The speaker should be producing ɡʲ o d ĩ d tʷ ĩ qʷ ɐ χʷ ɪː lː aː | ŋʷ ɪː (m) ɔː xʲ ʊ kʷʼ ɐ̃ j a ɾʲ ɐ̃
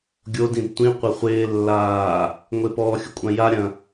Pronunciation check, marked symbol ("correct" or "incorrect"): incorrect